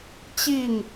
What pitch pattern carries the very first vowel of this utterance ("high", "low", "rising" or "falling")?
falling